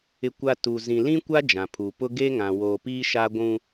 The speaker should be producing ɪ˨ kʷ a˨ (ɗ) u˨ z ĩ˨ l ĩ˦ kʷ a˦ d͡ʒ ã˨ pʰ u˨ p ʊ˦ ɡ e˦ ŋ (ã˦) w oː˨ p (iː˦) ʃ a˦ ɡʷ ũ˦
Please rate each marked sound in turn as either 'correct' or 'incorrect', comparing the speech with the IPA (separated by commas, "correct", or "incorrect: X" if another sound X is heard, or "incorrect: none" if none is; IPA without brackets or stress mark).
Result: incorrect: t, incorrect: ã˨, correct